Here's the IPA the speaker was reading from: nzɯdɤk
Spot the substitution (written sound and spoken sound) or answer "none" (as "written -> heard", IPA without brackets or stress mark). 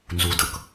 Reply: ɯ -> u